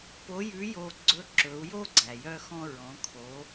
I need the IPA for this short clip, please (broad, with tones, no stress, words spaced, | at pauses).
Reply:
po˧˥jʉ˧˥jo˧ɡ͡ǀɵ˧˥ ǁɵ˩˧u̯jo˥ ɡ͡ǀæ˩jœ˧xɔ̃˧ ɹɔ̃˩˧kʰo˩˧